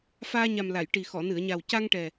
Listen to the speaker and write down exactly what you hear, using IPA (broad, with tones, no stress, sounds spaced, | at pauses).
f aː˧ ɲ a˨˩ m l a˨˩˨ j ʈ i˨˩ x ɔ˨˩˨ n ɨ˨˩˨ ə̯ ɲ a˨˩ w c a˧ ŋ ʈ ɛ˨˩